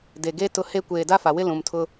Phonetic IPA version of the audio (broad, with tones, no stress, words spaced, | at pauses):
de˨ɡe˦ tʊ˦he˦ kʷeː˨da˦fa˨wɪ˦ lũ˨mtʰʊ˦